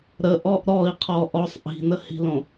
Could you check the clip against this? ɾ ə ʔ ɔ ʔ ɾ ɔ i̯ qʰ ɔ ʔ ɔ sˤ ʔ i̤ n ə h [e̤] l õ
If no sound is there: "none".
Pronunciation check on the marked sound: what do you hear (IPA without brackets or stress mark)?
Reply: i̤